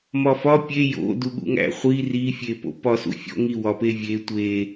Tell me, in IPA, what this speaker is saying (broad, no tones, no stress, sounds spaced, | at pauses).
m ɒ f ɒ pʲ e j o̰ d u ɠ ṵ ŋ æ̰ χʷ i r i fʲ e p o̰ p ɒ s ṵ fʲ o̰ ŋ i w ɒ p e vʲ e tʷ e